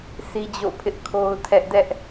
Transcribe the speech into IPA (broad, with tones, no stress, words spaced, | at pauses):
sʰi˦d͡ʑo̰˦˨pʰɪ˦ʔ kʰo˦ʊ̯tʰɛ˦ʔ dɛ˦ʔ